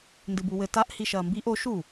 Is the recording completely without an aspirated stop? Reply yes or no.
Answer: yes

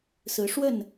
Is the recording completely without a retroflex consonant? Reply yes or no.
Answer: no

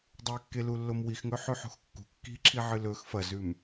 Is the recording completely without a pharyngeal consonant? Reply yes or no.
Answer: no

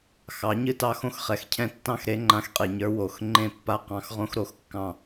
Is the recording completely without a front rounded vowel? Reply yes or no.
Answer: yes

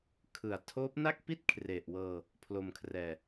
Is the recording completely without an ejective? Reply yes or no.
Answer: yes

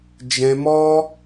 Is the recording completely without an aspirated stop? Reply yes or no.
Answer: yes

